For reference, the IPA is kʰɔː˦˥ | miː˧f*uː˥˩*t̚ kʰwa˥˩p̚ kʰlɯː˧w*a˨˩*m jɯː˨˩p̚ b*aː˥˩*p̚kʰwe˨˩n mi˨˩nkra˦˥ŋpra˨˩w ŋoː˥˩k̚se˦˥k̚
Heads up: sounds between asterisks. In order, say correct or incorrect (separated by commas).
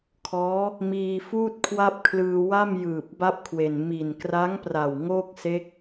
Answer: correct, incorrect, incorrect